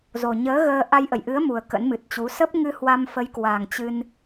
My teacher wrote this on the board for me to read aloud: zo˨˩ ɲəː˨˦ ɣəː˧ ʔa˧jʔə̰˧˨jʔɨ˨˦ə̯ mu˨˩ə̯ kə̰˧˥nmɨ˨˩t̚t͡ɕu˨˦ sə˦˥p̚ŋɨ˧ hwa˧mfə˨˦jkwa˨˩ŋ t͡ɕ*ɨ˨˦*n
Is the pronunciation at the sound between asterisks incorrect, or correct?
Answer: incorrect